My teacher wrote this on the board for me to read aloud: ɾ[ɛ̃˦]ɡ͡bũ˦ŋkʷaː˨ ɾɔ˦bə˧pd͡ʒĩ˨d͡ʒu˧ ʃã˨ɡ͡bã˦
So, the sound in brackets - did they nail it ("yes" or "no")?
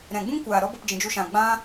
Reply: no